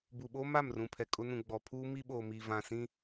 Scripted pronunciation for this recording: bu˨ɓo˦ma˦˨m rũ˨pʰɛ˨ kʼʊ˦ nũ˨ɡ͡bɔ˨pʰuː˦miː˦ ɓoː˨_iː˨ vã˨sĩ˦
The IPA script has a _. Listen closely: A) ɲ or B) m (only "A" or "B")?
B